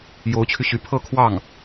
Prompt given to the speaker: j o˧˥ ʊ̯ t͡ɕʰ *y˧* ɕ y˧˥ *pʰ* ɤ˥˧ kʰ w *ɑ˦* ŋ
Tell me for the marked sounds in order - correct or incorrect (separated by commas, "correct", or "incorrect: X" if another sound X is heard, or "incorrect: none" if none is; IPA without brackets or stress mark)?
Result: correct, correct, incorrect: ɑ˥˩